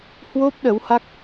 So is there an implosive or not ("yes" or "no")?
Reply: yes